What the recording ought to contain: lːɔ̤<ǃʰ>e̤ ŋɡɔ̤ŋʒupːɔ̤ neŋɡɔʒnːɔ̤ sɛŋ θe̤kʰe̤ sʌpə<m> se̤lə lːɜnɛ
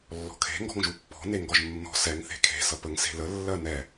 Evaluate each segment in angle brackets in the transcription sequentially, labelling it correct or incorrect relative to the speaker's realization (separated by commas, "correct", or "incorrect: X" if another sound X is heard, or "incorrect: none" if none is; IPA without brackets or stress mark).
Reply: incorrect: kʰ, incorrect: ŋ